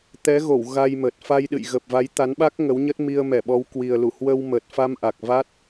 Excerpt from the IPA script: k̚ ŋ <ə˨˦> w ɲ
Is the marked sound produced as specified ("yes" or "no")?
yes